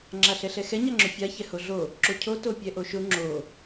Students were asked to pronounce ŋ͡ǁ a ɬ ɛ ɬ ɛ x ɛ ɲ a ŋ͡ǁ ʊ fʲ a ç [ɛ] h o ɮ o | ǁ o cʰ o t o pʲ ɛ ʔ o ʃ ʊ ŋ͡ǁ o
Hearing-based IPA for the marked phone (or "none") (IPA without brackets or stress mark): ɛ